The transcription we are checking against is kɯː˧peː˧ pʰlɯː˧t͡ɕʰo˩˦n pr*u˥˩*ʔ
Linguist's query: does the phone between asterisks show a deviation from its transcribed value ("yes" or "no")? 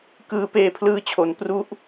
no